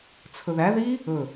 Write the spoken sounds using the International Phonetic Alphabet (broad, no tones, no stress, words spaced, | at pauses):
t͡sʰɵðæ ði | ɵ